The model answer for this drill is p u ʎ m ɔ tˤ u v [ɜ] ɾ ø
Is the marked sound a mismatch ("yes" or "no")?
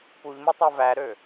yes